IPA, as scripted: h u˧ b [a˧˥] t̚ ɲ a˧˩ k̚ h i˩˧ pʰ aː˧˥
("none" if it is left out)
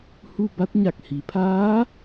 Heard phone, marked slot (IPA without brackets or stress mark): a˧˥